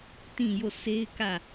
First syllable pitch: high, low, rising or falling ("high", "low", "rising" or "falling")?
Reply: falling